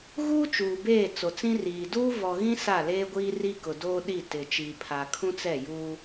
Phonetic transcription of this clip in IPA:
ɣ uː˦ t͡ʃ uː˨ b eː˦˨ t͡s o˨ t͡s ĩ˦ r iː˨ d uː˦ v ɔ˨ ɣ ĩ˦ s a˦˨ l eː˦ ɡʷ iː˦ r i˦ k ʊ˨ d oː˦ ɗ i˦˨ t ɪ˨ t͡ʃ iː˨ pʰ a˨ kʰ ũ˦ t͡s ɛ˦˨ j uː˦

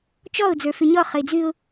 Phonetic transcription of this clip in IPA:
t͡ʃ ɔ ʊ̯ d͡z ə˞ f ʉ ɲ ɔ χ ə ɪ̯ d͡z ʉ ʊ̯

